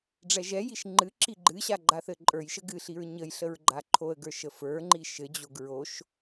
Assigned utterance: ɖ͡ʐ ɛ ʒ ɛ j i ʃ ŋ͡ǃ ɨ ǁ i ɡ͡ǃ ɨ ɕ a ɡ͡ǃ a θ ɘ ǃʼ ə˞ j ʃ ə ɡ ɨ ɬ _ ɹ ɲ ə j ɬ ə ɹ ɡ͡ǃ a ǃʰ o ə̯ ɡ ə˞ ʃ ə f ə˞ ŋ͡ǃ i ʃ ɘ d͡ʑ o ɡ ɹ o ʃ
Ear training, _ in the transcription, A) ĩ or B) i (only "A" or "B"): B